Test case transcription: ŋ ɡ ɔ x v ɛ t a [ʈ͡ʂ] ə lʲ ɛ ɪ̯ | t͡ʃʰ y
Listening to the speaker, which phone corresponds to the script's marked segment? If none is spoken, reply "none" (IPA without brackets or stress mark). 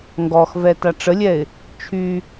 ʈ͡ʂ